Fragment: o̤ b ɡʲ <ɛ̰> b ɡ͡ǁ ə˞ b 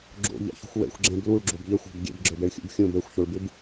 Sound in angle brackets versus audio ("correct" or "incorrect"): correct